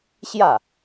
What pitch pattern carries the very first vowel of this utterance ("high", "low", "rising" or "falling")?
falling